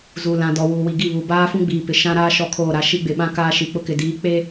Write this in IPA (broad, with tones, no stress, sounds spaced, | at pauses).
z u˨ l ã˨ d ɔ˨ w uː˨ w i˨ ɡ i˦˨ β u˨ b aː˦ f ũ˦ ɡ͡b iː˨ p ɪ˨ ʃ ã˦ ɾ aː˦ ʃ ɔ˦ kʰ oː˦˨ ɾ a˦ ʃ i˦ ɡ͡b ɪ˨ ɓ ã˦ k aː˦ ʃ i˨ k͡p ʊ˦ k ɪ˨ d iː˨˦ k͡p e˦